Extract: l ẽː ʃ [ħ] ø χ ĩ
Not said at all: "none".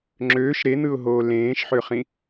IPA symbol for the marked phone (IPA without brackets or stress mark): ħ